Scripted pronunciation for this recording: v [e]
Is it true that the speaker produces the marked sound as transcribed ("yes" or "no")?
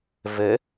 no